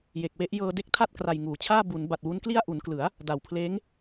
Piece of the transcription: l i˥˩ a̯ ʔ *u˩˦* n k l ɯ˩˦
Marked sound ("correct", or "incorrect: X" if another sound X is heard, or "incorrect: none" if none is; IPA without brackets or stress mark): correct